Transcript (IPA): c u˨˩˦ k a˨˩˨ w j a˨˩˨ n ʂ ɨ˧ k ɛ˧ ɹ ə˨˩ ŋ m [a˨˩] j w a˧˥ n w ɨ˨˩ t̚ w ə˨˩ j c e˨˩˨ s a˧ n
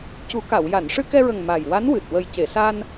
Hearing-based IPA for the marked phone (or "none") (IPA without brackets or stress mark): a˨˩